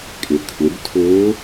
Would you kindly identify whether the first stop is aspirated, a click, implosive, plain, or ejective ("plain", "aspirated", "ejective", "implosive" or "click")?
ejective